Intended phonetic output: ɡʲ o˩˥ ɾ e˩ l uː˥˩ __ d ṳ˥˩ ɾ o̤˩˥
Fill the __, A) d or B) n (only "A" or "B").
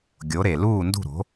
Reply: B